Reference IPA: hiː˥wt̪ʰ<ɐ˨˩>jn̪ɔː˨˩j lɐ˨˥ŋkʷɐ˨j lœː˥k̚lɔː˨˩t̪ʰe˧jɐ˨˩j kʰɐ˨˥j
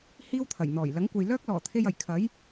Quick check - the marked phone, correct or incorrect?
correct